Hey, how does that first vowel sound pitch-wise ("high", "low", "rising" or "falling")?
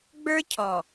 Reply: high